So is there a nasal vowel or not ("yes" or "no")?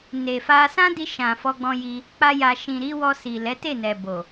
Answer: yes